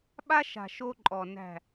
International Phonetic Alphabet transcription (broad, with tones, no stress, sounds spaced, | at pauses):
ɓ a˦ ʃ a̤˨ ʃ o˦ ǃʼ ɔ˨ n æ̤˦˨